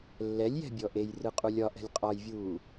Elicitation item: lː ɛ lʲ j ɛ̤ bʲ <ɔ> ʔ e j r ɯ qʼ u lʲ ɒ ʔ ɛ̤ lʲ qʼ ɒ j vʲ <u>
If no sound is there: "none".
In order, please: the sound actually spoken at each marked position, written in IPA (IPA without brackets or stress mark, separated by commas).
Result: ɔ, uː